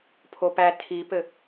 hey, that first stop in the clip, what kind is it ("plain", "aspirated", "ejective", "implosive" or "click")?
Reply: aspirated